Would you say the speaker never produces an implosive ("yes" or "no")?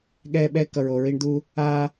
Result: no